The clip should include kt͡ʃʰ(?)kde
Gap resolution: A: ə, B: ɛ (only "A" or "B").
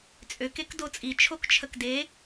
A